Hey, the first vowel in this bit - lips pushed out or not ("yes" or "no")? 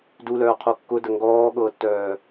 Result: yes